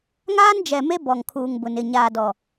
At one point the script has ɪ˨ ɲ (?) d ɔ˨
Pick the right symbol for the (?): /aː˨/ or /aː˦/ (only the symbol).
aː˨